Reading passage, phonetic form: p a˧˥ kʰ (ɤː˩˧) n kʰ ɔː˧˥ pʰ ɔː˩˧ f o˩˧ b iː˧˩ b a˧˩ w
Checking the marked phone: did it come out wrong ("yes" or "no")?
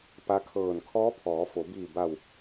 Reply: yes